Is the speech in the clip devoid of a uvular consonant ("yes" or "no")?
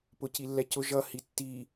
yes